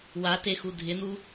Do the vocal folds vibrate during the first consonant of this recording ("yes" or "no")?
yes